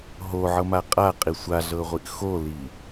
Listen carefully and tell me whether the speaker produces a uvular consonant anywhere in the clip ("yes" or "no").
yes